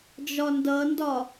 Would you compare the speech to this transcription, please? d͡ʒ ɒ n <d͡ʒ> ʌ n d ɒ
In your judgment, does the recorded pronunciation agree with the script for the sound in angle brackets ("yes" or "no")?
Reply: no